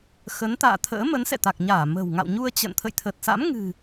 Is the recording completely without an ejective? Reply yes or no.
yes